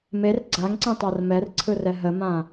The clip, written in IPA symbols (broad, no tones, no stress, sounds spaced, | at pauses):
m e r ɡ͡ǀ a ŋ ǀ ẽ tˤ a r m ɛ r ǀʰ ɯ r ɛ ɦ ə m ã